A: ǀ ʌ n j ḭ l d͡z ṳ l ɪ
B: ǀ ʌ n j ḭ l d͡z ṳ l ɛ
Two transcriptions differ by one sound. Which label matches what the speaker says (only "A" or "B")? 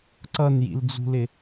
A